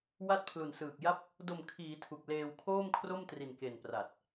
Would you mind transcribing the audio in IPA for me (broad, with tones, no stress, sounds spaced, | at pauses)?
w a˦˥ t̚ pʰ l u˨˩ n s ɯː˨˩ k̚ j a˥˩ p̚ | d o˨˩ m kʰ iː˩˦ tʰ u˨˩ k̚ l eː˧ w kʰ oː˥˩ m kʰ r o˥˩ m t r i˨˩ n k e˨˩ n p r a˨˩ t̚